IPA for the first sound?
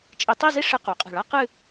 t͡ʃʼ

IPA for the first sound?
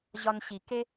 ʑ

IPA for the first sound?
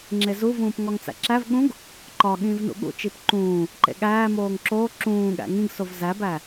ŋ͡ǁ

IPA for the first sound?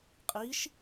qʼ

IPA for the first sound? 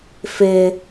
f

